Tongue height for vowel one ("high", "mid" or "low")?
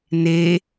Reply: mid